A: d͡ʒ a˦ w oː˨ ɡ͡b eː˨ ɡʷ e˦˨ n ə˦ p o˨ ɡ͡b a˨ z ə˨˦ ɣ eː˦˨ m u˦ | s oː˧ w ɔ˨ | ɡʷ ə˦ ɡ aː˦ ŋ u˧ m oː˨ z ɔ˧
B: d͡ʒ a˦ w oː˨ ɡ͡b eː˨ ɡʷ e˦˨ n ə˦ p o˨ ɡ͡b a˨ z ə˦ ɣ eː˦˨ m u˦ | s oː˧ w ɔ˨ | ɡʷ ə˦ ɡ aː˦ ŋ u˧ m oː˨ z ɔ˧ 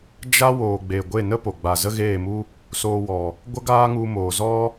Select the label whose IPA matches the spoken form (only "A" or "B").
B